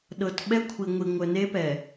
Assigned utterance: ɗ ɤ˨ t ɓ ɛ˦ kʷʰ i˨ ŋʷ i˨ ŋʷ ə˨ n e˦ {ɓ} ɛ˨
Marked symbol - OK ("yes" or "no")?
no